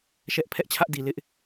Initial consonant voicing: voiceless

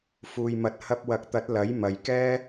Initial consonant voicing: voiceless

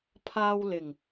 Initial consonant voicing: voiceless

